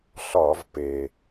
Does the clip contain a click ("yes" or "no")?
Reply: no